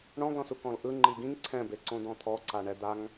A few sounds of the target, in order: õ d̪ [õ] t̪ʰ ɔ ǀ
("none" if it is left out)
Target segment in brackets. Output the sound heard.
ɔ̃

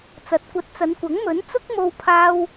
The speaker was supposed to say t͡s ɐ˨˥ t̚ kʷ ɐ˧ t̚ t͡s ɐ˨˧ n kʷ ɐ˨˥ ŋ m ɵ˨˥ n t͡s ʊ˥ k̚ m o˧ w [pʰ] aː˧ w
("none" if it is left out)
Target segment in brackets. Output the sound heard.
pʰ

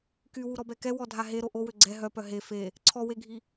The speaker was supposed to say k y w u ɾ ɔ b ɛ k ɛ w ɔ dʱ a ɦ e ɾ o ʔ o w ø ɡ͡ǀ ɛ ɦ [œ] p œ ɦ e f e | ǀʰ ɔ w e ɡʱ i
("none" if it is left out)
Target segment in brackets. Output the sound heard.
œ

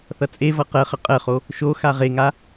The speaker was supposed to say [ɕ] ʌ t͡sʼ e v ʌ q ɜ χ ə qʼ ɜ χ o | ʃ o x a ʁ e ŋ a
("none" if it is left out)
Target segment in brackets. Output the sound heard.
θ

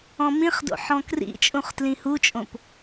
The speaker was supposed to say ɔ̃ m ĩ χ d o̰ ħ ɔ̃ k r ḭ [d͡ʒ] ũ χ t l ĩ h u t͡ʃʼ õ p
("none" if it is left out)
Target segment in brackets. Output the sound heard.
t͡ʃʼ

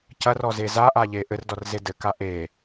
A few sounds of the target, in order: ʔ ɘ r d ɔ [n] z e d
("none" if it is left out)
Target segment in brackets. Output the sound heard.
r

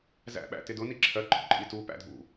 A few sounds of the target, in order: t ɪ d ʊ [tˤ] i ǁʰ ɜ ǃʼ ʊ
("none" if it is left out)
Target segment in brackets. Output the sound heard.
n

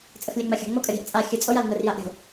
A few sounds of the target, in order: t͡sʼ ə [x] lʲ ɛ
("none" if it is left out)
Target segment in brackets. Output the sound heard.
x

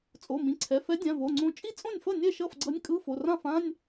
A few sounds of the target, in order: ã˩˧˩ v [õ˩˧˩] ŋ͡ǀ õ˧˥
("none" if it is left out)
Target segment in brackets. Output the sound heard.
o˩˧˩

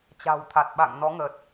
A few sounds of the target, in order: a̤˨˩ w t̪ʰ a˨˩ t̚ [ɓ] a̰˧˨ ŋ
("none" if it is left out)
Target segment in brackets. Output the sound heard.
ɓ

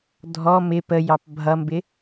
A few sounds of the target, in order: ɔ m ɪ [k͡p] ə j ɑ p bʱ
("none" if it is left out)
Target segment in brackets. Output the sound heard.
p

